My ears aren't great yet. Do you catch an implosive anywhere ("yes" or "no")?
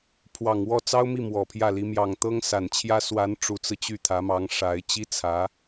no